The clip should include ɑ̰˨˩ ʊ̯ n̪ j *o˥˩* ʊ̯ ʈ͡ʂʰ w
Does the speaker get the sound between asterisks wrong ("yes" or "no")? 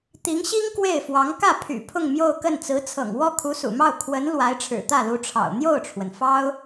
no